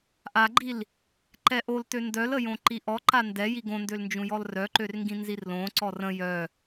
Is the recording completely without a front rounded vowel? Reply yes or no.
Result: no